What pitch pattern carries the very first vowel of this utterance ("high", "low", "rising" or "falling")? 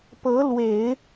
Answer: rising